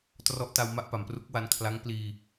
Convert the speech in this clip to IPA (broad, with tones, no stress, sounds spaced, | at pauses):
t r ɔ˦˥ ʔ t a˧ w m a˥˩ ʔ p a˩˦ m p r u˦˥ k̚ w a˧ n kʰ l a˦˥ ŋ p l iː˧